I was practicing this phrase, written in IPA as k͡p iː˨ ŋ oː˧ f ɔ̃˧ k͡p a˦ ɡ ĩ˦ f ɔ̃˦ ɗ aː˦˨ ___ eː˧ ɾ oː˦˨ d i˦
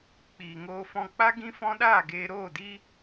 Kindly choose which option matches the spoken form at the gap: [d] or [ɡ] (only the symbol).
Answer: ɡ